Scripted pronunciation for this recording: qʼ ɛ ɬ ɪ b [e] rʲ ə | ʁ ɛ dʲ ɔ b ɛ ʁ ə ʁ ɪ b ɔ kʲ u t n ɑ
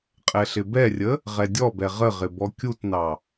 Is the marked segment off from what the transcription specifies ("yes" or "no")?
yes